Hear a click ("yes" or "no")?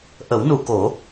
no